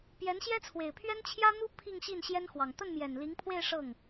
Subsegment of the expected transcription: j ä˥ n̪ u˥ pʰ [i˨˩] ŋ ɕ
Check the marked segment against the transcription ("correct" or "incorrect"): incorrect